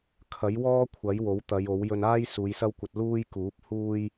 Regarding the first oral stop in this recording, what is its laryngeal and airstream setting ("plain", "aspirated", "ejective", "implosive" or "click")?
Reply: aspirated